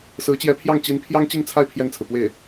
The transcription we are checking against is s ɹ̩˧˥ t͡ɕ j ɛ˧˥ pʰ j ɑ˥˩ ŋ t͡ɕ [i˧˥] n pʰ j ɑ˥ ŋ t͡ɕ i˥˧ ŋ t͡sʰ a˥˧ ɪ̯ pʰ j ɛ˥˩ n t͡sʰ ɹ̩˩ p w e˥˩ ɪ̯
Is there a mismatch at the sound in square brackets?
no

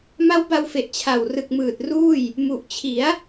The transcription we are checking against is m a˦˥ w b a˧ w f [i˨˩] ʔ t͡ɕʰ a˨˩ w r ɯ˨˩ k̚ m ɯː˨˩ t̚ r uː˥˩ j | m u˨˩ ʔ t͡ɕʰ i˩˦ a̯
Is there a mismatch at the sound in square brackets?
yes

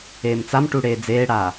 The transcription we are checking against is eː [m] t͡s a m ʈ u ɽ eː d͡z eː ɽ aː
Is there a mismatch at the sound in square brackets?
no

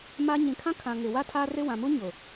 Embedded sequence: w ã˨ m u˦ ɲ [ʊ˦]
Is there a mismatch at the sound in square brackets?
yes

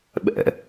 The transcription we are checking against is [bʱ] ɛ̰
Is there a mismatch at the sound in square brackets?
yes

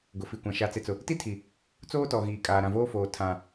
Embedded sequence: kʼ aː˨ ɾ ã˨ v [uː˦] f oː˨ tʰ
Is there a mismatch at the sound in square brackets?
yes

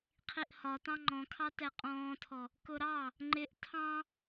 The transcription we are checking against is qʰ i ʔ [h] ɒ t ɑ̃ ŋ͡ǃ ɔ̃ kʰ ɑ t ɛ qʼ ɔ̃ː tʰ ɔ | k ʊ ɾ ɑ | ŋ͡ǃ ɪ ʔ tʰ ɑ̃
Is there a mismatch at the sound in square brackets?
no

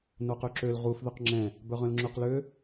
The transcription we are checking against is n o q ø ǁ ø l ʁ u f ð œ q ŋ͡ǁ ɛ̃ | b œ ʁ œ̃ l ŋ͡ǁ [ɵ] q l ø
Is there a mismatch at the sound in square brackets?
no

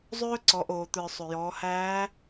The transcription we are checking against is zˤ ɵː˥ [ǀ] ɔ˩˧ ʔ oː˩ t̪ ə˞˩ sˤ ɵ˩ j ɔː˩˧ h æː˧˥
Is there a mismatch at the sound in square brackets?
no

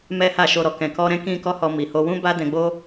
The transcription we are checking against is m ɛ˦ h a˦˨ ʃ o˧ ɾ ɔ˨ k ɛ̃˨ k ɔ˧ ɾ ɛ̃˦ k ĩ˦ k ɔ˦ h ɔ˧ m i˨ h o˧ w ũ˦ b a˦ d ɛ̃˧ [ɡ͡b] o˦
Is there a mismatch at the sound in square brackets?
no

